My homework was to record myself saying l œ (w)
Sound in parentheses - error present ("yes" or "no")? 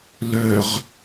yes